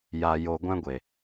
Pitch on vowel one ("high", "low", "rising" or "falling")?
high